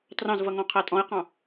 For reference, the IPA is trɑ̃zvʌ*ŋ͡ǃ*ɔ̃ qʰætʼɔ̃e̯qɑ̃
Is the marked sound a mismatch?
yes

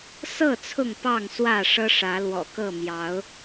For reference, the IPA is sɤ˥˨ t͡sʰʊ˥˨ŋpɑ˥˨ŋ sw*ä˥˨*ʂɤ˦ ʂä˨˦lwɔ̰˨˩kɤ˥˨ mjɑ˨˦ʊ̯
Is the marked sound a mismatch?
no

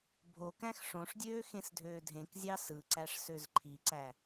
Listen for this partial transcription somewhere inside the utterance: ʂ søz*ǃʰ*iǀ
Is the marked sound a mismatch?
no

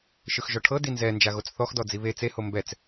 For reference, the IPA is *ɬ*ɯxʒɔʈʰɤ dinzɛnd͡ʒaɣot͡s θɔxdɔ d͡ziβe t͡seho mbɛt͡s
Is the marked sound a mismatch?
yes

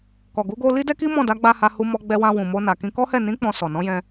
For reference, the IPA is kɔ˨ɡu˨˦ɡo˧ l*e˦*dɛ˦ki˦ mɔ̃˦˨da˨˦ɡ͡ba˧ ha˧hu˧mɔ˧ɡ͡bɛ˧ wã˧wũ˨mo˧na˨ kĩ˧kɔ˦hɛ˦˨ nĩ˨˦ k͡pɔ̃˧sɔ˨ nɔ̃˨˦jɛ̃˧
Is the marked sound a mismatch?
yes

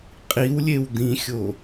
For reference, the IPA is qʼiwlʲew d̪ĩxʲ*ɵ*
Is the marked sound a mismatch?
yes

